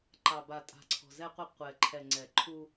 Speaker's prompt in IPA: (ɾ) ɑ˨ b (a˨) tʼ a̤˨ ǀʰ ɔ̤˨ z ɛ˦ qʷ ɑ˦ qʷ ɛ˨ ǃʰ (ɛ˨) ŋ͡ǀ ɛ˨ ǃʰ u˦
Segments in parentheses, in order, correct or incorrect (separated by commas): incorrect, correct, correct